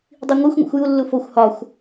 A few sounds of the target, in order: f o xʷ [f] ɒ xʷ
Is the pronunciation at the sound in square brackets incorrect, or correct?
incorrect